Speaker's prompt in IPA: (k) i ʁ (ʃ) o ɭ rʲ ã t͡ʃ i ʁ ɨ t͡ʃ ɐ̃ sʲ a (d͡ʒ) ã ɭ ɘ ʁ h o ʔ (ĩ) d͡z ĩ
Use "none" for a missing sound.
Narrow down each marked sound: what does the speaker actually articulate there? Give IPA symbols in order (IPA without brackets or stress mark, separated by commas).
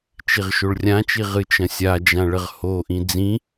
t͡ʃ, ʃ, d͡ʒ, ĩ